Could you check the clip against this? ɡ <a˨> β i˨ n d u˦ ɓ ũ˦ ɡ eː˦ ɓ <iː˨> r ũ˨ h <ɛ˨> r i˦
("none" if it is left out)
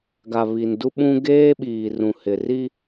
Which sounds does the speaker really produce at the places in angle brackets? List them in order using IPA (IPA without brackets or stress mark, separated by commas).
a˨, iː˨, ɪ˨